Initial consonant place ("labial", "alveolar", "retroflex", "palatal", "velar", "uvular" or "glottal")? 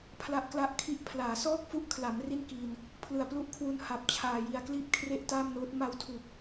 labial